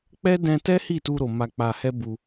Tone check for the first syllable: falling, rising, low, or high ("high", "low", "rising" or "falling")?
high